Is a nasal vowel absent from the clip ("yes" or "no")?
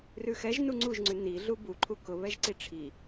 yes